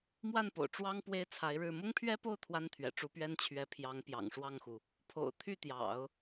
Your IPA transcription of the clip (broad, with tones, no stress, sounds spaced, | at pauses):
m w a˥˩ n p o̰˨˩ ʊ̯ ʈ͡ʂ w ɑ˥ ŋ p w e˥ ɪ̯ t͡sʰ a˧˥ ɪ̯ ɻ ɻ̩˥˩ m ʊ˥ ŋ pʰ ɥ ɛ˥ p o˥˩ ʊ̯ t̪ʰ w a˥ n t̪ʰ ɥ ɛ̰˨˩ ʈ͡ʂ u˧˥ p ɥ ɛ˥ n t͡ɕʰ ɥ ɛ˧˥ pʰ j ɑ˧˥ ŋ p j ɑ̰˨˩ ŋ ʂ w ɑ˥˩ ŋ x u˩ | pʰ o̰˨˩ ʊ̯ t̪ʰ y˥˩ t̪ j ɑ̰˨˩˦ ʊ̯